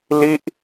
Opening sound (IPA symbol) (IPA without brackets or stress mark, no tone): l